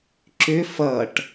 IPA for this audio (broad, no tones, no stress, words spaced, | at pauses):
ǁʏ fʌʈ